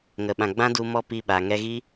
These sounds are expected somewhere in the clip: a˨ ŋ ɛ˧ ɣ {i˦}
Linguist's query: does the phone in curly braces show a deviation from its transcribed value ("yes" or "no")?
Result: no